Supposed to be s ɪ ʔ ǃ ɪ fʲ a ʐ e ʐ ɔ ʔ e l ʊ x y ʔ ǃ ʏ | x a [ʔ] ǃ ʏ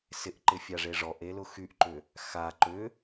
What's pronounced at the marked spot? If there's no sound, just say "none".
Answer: none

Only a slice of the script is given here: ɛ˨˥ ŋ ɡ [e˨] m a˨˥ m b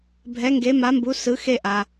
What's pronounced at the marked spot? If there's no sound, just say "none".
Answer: e˨˥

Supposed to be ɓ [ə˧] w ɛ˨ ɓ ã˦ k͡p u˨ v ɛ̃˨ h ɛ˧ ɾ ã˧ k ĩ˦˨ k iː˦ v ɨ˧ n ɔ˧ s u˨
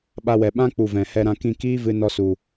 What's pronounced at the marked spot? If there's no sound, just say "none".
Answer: a˧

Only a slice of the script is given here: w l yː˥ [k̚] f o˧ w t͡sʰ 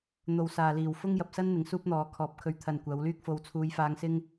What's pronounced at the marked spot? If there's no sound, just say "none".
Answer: k̚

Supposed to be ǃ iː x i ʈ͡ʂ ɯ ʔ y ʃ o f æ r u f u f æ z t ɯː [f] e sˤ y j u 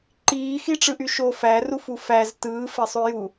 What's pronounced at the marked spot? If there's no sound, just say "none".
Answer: f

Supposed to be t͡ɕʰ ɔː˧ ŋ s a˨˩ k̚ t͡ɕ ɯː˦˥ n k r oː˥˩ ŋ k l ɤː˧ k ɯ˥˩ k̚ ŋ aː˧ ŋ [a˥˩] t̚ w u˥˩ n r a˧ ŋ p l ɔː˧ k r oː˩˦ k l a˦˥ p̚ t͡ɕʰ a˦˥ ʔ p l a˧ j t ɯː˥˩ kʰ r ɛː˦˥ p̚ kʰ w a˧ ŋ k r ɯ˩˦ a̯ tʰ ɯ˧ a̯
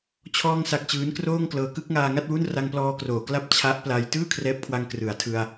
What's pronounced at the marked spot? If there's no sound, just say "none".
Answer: a˥˩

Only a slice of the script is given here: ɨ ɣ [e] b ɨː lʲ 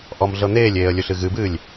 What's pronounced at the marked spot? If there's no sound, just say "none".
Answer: ɨ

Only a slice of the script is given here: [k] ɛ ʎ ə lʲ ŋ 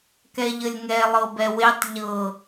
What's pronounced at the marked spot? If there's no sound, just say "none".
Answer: k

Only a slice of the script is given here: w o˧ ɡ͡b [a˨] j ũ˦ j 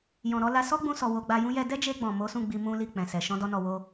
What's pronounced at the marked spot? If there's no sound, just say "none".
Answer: a˧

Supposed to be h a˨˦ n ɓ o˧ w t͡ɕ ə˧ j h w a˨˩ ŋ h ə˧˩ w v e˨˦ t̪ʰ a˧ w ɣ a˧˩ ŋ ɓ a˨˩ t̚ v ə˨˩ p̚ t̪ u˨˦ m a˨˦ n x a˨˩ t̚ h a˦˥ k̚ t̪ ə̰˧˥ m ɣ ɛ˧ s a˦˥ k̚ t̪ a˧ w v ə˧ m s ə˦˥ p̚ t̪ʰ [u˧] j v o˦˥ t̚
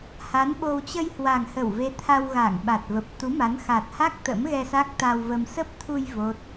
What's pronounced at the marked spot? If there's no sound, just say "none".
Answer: u˧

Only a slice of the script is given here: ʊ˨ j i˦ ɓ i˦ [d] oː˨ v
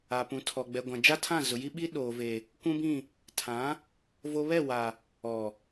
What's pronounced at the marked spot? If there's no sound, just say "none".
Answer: ɗ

